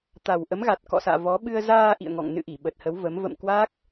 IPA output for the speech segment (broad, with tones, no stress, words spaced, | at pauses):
t̪a˨˩w ʔə˨˦mɣa˨˩t̚kɔ̰˧˨sa̰ː˧˨ vɔ˨˦ ɓɨ˧ə̯zaː˧ ʔḭ˧˨ə̯ŋɔ̰˧˨ŋ nɨ̰˧˨ʔi˧˩ ɓə˨˩t̚hə˨˦w və˨˦m və̰˧˨m kwa˦˥k̚